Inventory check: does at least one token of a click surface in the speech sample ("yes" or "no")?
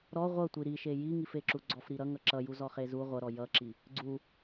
yes